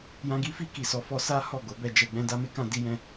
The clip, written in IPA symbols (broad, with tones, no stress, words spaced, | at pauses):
jã˧ɡi˦ fi˧ki˨ sɔ˨˦fɔ˧ sa˦ hɔ˦˨ɡo˨˦bɛ˧d͡ʒɛ˧ ɡ͡bɛ̃˦ da˦me˦kã˦ di˦jɛ̃˦